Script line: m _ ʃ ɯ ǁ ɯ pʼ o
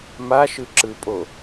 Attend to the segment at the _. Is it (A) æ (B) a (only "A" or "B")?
B